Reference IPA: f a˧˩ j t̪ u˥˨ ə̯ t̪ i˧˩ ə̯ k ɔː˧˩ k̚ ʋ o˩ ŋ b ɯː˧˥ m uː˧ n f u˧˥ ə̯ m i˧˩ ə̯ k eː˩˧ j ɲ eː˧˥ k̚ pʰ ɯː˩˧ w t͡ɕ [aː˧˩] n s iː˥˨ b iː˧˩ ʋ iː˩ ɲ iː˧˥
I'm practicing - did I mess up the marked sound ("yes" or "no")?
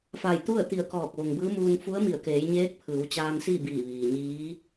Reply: yes